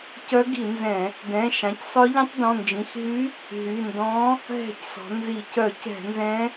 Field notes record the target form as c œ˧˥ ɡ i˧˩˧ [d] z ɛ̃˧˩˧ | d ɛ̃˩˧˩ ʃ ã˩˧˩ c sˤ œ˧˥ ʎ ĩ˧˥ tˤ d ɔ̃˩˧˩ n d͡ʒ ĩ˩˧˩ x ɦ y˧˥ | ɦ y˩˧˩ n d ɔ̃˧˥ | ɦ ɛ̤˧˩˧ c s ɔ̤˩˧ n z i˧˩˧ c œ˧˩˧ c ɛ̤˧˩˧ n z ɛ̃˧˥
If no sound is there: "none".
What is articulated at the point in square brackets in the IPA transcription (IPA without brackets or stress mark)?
n